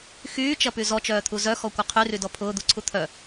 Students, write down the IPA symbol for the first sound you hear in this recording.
x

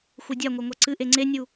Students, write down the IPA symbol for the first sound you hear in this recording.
xʷ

